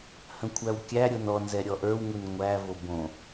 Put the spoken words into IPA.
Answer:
h ə̃ kʷʰ æ w kʲ æ ɾʲ o n ɔ n z ɛ ɾʲ ɔ ʔ ə˞ w ŋ u n ŋʷ æ v o b õ

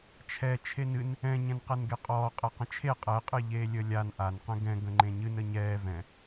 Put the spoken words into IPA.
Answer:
t͡ʃʰ ɛ t͡ʃʰ e n ɨ n | ɛ̃ ɲ ɛ̃ n q ɛ n ɡ e qʼ ɔː qʼ e q ə̃ t͡ʃʰ e qʼ ɛ qʼ ɨ ʎ eː lʲ ə lʲ a n ʔ a n q ɛ̃ ɡ ɛ̃ ɡ ə̃ ŋ͡ǃ ẽ ɲ ɨ n ə ɲ ɛː v ɛ̃

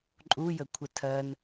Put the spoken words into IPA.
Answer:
ǃʼ u j ə kʷʰ ə tʰ ɜ n

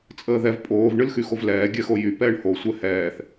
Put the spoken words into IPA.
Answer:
t͡sʼ əː ð ɛ v pʼ oː v ɳ ɨ l x y x o v l ɛː ɡʲ ɛ x o j y p ɛː ɳ h o sʷ ɛ h ɛː θ

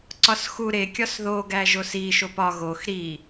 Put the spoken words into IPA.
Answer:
ǀ ɒ s x u ɾ e kʲ ɒ s ð o ɡ æ ʒ o s i ʃ o p ɒ ɣ o x ɾ i

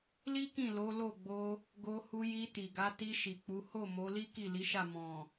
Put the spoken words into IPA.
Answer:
l i˦ k ĩ˦˨ l o˨˦ l o˦˨ ɡ͡b o˧ | ɡ o˧ h u˧ j i˧ t i˨ ɡ a˨˦ t i˧ ʃ i˨ k͡p u˨˦ h o˦˨ m o˨˦ l i˦ k i˦˨ l i˨˦ ʃ a˦˨ m ɔ̃˨

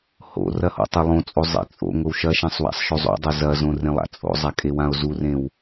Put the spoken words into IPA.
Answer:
h o̰ r ɐ h o̰ tˤ e lˠ õ t͡sʼ o zˤ ḛ t͡sʼ o̰ ŋʷ ɘ w ʃ ɐ ʃ ã sˤ w a̰ sˤ ʃ o zˤ o̰ dˤ o z ɐ z õ r ẽ lˠ a̰ t͡sʼ o̰ zˤ a kʼ e w ã o̯ z u r ẽ w

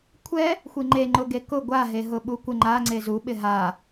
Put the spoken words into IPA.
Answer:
kʷʰ ɛ | xʷ i ŋ͡ǃ e ŋ͡ǃ ʊ ɡ e k ʊ ɡʷ a ɦ e ɦ ʊ ɓ u kʷ ɪ ŋ͡ǃ a ŋ͡ǀ e z u ɓ ɪ ɦ a

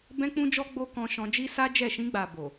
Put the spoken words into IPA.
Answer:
b ɛ̃˦ k͡p ũ˦ d͡ʒ ɔ˦ ɡ͡b o˧ k ɔ̃˧ ʃ ɔ̃˧ d͡ʒ i˦ s a˦ d͡ʒ ɛ˦˨ ʃ ĩ˧ ɡ͡b a˨ b o˨

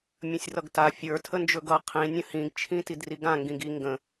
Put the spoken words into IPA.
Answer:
mʲ ə̃ sʲ r ʌ ɡ t a fʲ ə˞ tʰ ə n d͡ʒ ɵ ɡ ʌ qʰ ĩ nʲ ə̃ h ĩ ɡ t͡ʃʰ ĩ t i d r i ɡ ã ŋ ɡ ĩ ɡ i ŋ ɡ ə̃

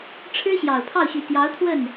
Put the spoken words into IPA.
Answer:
ʈ͡ʂʰ ɻ̩˥ ɕ j ɑ˨˩ ʊ̯ pʰ ɑ˥˩ ʊ̯ ɕ y˨˩ t̪ j ɑ˧˥ ʊ̯ t̪ʰ w ə˥˩ n

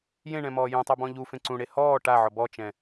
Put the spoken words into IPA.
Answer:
j ẽ ɳ ɛ̃ m ɔː j ũ tˤ o b ɔ̃ ʎ u f ẽ ǀ ũ ɽ e h ɔː ʈ a ʕ ɔ b ɔ t͡ʃ ɛ̃

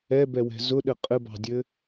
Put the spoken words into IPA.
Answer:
ɛ b ɛ w ɛ̤ z ʊ ɗ ɘ qʼ ɘ b ɑ̤ dʲ ɘ

